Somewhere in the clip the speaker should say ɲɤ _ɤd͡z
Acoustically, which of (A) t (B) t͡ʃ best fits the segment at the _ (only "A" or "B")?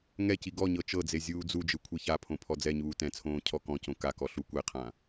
B